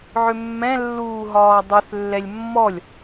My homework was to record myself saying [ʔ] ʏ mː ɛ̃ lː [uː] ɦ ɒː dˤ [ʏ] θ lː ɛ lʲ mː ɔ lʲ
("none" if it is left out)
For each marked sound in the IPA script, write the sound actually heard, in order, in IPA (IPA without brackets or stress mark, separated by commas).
ʕ, uː, ʏ